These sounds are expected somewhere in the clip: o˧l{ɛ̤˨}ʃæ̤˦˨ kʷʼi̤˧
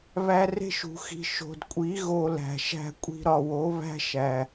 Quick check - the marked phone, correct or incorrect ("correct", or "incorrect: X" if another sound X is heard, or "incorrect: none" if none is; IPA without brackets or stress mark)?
incorrect: æ̤˨